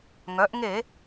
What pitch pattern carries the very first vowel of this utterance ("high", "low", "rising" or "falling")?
rising